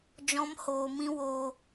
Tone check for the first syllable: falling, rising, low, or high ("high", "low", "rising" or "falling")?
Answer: high